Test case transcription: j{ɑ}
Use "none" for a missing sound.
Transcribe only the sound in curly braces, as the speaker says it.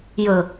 ə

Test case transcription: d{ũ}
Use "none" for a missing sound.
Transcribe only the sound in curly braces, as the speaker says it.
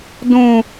ũ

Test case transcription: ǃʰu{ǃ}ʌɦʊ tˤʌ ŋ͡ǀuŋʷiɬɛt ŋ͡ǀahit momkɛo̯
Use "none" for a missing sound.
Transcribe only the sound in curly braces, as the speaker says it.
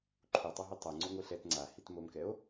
tˤ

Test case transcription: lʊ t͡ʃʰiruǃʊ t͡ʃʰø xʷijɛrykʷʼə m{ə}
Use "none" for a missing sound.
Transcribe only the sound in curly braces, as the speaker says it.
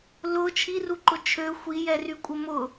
ʊ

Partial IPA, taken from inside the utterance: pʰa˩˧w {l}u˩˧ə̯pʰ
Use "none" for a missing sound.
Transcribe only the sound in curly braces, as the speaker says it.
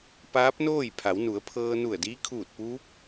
n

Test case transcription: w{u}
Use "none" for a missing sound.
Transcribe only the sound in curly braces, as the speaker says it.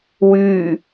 y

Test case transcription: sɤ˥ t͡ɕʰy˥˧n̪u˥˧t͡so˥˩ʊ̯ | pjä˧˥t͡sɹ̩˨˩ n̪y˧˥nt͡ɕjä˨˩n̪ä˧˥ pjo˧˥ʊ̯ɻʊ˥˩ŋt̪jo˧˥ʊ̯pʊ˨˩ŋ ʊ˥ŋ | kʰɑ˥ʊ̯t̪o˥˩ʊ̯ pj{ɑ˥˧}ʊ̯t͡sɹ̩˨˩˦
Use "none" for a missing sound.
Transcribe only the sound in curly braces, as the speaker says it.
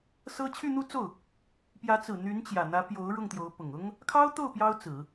ɑ˥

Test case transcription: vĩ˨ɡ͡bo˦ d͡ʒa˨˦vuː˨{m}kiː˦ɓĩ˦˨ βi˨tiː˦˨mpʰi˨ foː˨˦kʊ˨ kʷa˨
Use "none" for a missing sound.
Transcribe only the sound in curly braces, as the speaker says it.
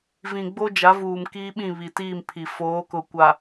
m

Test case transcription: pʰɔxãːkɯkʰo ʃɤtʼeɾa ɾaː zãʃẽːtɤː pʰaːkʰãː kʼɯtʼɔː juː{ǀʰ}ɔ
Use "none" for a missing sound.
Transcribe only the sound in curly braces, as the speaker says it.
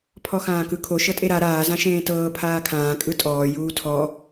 tʰ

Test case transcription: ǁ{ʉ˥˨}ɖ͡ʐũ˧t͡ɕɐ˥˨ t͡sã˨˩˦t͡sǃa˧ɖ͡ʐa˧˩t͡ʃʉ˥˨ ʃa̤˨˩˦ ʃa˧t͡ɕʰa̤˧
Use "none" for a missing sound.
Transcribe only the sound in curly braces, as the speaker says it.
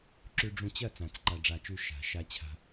ʉ˧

